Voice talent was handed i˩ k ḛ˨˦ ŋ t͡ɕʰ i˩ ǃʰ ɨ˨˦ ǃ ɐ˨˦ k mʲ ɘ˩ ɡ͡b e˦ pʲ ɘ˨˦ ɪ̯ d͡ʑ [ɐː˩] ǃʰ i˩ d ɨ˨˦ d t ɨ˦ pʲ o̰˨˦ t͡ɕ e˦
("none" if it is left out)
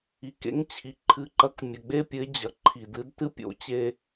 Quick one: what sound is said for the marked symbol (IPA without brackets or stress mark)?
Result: ɐ˩